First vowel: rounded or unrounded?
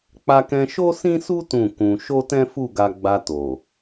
unrounded